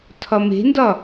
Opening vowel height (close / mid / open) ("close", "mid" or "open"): open